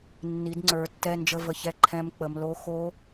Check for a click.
present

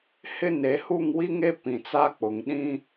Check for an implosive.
present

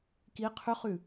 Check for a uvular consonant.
present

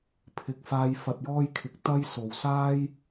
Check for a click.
absent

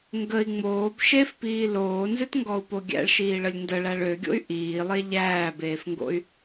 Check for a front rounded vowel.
present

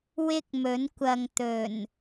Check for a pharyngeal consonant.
absent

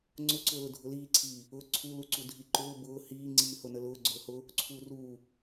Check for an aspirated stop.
present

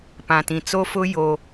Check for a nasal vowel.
present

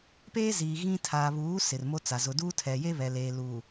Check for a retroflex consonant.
absent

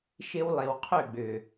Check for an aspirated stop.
present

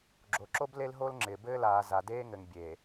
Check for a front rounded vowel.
absent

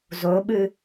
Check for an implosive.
present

